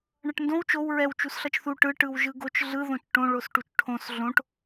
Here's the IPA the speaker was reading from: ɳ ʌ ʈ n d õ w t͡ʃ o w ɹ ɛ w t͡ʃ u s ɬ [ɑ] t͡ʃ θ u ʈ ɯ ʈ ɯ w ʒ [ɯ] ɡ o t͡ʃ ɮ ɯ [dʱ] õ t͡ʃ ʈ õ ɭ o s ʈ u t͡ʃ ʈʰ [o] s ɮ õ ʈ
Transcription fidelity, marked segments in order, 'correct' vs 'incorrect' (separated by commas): incorrect, correct, incorrect, incorrect